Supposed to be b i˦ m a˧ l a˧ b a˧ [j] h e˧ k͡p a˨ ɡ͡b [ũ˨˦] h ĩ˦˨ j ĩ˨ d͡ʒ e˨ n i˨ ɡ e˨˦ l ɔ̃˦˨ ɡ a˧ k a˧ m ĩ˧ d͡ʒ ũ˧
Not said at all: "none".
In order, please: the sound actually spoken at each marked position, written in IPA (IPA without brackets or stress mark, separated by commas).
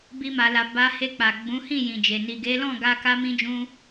none, ũ˨˦